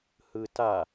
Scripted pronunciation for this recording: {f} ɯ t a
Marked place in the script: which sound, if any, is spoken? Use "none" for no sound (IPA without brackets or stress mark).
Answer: h